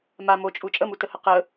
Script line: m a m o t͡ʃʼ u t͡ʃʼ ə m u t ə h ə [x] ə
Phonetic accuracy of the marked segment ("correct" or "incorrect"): incorrect